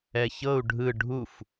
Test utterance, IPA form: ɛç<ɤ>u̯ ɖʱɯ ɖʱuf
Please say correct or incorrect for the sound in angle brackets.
correct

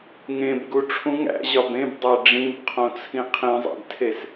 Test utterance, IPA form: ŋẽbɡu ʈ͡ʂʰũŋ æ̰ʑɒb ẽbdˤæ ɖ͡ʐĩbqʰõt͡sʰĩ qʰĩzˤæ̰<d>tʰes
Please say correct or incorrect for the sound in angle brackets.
correct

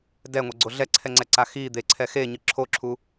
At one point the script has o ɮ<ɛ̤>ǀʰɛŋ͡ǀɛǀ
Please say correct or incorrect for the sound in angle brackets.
incorrect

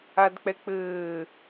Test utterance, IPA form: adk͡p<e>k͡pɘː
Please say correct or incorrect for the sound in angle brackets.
incorrect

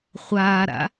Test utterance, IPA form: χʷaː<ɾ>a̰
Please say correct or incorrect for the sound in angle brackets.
correct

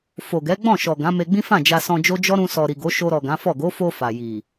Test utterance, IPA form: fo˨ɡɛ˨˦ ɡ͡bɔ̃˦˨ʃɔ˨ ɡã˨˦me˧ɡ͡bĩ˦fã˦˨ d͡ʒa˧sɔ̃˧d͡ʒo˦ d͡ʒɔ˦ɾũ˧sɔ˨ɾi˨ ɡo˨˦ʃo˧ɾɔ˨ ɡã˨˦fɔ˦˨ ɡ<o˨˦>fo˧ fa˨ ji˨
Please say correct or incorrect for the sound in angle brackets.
correct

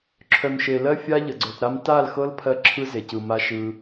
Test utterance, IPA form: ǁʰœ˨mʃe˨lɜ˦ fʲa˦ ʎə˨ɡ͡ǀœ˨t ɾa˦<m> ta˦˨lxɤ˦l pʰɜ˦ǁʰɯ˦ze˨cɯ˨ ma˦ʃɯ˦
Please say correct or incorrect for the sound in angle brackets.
correct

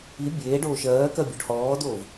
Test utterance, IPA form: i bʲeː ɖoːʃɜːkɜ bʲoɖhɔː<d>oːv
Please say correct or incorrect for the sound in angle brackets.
correct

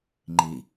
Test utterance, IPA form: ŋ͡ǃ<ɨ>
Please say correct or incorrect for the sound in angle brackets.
incorrect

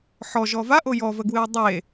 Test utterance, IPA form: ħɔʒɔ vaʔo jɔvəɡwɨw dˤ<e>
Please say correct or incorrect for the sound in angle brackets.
correct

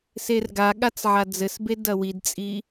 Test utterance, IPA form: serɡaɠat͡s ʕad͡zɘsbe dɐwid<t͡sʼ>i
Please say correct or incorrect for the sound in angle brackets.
correct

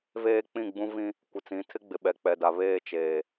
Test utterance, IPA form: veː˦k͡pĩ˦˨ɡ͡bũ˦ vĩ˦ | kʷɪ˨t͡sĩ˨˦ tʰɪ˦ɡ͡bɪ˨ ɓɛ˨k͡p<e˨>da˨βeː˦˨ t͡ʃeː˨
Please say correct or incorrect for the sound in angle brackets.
incorrect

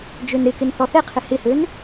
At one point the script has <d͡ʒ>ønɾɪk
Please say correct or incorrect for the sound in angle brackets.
correct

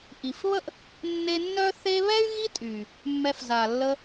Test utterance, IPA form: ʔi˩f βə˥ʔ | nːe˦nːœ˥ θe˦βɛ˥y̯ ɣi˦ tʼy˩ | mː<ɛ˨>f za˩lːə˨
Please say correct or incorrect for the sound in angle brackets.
correct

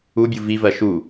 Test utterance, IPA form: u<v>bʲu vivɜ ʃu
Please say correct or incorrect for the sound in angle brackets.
incorrect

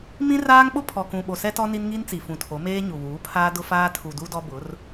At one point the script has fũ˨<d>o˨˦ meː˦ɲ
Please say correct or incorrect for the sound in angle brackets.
incorrect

